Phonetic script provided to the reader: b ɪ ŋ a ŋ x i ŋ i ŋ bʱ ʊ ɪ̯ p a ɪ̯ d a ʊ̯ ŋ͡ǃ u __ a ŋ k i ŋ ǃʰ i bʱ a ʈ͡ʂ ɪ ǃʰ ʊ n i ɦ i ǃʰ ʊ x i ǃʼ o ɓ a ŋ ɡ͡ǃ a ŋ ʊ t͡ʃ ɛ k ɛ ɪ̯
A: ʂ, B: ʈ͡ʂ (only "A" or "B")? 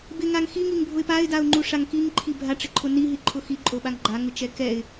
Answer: A